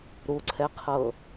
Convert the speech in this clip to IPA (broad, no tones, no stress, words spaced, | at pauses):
ɾuǀʰɛqʰɤ